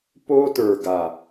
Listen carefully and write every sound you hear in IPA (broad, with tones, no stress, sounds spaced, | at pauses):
p o˦ t ə˞˨ ɡ a˨